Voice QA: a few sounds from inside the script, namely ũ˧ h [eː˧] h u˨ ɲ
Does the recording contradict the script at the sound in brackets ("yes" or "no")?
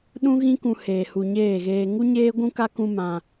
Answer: yes